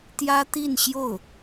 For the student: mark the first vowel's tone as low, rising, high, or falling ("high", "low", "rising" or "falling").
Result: high